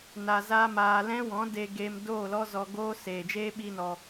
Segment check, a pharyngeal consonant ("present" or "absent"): absent